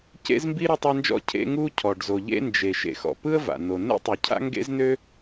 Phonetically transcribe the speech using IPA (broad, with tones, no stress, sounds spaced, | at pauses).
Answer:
c ḛ˥ z m b i˥ ɾ ø˥ tˤ a˥ n d͡ʒ ɔ̰˥ cʰ ḛ˥ ŋ u˥ cʰ ɔ˩ ɖ z o˩ ʎ ḛ˥ n d͡ʒ e˩ ʃ ḛ˩ x ɔ̰˩ p ɯ˥ ə̯ v a̰˩ n o˩ n ḛ˥ tˤ ɯ˩ cʰ a̰˥ ŋ ɡ ḛ˥ z n ø˥